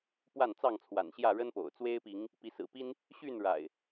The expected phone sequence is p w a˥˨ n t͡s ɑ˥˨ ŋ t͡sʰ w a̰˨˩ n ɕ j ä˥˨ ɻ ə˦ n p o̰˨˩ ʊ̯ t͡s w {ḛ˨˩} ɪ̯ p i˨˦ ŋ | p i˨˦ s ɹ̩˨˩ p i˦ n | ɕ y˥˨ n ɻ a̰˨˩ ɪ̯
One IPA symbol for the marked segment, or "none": e˦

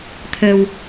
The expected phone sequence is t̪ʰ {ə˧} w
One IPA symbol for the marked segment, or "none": ə˧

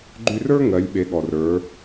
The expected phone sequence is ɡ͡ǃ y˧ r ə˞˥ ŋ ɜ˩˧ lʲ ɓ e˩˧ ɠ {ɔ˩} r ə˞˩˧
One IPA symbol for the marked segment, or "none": ɔ˩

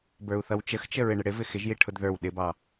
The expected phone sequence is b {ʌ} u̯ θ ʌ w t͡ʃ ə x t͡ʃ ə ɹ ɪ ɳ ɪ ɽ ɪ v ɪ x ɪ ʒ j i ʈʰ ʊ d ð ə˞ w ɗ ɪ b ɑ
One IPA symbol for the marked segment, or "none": ə˞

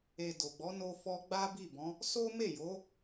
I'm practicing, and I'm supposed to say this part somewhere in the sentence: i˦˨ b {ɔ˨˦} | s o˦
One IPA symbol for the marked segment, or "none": ɔ̃˨˦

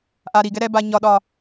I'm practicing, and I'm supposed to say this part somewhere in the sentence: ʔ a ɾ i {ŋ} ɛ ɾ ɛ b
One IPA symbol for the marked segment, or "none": ɡ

